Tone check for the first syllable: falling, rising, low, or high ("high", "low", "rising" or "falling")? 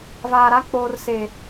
low